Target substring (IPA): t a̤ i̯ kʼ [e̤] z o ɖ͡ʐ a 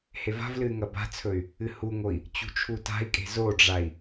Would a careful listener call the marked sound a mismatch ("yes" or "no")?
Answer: no